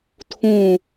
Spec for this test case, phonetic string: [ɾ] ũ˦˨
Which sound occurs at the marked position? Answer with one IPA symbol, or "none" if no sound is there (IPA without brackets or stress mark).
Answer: tʰ